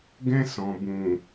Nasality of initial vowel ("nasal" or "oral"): nasal